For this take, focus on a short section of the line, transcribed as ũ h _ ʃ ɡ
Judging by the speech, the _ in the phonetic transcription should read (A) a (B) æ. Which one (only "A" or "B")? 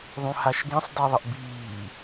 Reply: A